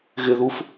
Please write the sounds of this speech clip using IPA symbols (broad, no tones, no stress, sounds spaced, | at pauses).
ɣ ɪ ð u f